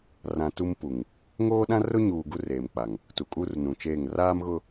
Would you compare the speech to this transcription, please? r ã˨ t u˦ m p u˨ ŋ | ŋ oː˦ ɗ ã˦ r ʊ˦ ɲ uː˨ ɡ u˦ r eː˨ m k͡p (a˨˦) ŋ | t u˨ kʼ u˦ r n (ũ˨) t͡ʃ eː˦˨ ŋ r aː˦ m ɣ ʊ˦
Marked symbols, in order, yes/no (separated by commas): no, yes